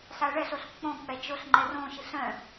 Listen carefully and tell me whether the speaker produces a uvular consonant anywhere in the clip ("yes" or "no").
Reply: no